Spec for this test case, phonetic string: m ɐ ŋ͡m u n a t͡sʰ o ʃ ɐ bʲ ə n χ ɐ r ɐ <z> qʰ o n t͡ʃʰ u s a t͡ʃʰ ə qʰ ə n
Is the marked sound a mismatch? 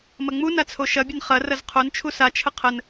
no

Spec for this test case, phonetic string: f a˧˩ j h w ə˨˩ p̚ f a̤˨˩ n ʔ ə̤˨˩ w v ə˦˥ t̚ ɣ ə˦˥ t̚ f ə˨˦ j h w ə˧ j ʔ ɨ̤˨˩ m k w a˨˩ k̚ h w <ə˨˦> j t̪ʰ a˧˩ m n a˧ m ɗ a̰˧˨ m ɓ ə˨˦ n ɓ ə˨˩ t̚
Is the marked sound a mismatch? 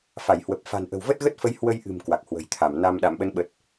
yes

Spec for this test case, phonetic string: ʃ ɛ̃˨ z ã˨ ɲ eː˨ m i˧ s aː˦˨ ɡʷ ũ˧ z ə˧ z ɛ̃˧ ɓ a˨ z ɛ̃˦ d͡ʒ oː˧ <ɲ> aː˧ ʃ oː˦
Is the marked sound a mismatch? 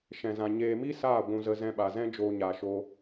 no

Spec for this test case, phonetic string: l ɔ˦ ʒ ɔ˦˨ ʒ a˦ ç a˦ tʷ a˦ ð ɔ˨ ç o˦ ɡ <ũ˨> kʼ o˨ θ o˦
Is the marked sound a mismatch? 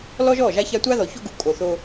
yes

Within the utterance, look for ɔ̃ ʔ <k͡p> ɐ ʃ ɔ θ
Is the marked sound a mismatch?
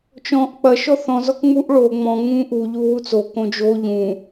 no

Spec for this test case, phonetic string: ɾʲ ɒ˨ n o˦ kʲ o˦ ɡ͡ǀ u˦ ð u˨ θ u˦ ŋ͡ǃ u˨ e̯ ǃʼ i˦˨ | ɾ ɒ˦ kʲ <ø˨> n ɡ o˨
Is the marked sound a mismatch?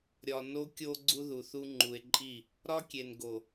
yes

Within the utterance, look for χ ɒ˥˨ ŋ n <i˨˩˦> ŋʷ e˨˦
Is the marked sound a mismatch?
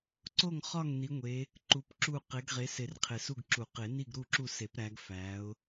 yes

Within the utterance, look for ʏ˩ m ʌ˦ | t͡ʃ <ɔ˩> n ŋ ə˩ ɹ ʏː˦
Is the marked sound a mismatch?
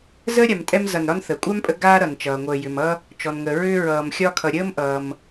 no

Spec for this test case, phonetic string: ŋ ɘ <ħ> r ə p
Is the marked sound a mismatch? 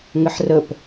no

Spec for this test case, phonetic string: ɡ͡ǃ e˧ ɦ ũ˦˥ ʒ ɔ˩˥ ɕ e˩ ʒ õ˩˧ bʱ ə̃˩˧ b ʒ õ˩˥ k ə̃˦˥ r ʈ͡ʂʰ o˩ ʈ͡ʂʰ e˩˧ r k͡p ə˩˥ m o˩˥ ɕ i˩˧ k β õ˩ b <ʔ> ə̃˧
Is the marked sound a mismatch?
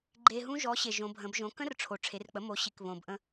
no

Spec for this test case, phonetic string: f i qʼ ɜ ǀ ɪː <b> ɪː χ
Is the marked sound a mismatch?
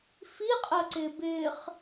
no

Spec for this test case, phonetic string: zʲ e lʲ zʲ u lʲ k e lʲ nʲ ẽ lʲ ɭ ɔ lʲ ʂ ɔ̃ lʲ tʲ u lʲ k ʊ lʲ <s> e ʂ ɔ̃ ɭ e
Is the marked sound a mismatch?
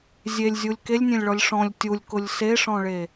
no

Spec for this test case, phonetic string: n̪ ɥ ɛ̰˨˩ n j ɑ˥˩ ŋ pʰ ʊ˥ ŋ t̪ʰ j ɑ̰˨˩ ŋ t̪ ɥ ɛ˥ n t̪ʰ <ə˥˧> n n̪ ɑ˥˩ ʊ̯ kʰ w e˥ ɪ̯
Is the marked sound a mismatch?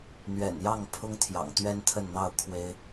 no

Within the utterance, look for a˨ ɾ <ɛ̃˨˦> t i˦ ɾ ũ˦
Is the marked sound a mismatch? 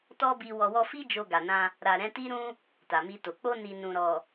no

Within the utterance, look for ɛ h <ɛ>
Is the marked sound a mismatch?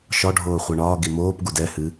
yes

